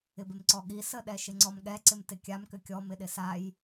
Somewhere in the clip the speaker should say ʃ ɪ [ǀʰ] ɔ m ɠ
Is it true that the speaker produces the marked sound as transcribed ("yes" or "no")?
no